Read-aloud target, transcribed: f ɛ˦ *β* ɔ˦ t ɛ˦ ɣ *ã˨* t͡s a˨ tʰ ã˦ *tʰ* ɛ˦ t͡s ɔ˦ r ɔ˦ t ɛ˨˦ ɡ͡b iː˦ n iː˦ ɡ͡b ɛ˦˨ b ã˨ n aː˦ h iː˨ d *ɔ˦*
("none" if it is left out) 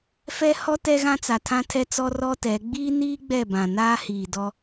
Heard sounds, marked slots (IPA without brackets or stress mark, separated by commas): h, ã˦, tʰ, ɔ˦